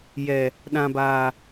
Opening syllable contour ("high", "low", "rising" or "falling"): low